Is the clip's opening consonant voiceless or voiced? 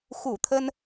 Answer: voiceless